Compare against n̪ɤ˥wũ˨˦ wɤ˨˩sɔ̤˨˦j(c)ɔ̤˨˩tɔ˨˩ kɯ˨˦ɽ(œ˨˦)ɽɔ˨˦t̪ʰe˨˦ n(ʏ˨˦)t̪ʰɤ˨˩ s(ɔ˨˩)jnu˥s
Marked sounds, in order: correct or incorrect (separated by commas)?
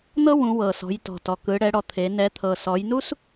incorrect, incorrect, incorrect, incorrect